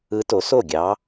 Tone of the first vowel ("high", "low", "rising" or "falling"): rising